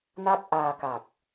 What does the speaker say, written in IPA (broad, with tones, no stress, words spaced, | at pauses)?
na˥˩k̚ ʔaː˧ka˨˩k̚